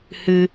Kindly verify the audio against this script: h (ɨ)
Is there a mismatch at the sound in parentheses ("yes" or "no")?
no